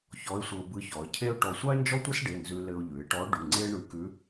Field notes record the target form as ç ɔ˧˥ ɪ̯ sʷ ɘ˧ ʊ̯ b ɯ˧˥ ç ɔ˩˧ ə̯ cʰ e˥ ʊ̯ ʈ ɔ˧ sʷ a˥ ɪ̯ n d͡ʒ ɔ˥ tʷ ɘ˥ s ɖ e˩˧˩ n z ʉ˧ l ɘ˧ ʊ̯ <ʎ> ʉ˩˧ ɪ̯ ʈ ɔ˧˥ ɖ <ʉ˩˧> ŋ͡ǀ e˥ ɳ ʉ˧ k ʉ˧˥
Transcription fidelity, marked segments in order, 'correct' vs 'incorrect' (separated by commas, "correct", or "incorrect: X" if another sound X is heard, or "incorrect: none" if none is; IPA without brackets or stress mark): correct, incorrect: ʉ˩˧˩